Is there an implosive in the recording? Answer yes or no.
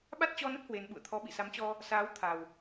yes